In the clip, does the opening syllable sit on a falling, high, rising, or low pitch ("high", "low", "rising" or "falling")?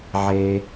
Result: high